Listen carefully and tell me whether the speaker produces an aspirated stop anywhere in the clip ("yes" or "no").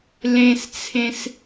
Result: yes